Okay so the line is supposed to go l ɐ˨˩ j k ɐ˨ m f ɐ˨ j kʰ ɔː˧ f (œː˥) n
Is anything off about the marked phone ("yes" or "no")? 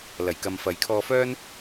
no